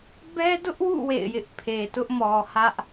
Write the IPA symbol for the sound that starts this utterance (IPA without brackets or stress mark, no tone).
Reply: b